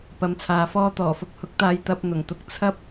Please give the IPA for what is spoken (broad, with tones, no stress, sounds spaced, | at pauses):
p ɐ˨˥ m t͡sʰ aː˨ f ɔː˥ t̪ ɔː˨˩ f ʊ˧ k̚ h ʊ˨˥ k̚ t̪ aː˧ j t̪ ɐ˧ p̚ n̪ ʊ˨˩ ŋ t̪ ʊ˧ k̚ t͡sʰ ɐ˥ p̚